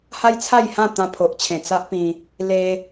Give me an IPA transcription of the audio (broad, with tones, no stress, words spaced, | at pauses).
ha˦jt͡sʰa˥˧jhã˥˧ t̪ã˧pʰo˨ʔt͡ɕʰẽ˨˩ t͡sa˦ʔpĩ˧ | le˧